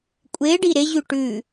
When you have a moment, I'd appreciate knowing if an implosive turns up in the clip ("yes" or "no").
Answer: no